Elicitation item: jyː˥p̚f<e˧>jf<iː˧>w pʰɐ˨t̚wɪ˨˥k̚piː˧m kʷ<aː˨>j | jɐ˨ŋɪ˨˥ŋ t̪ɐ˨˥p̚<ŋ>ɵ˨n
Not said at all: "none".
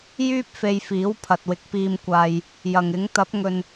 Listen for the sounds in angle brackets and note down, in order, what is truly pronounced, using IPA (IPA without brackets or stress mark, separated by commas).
e˧, iː˨˥, aː˧, ŋ